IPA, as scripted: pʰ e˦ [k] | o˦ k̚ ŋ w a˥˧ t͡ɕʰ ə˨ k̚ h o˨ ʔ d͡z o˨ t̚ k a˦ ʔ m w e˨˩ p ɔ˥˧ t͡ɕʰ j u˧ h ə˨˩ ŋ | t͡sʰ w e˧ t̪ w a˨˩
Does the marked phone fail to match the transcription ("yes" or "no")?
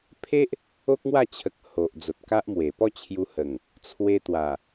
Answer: yes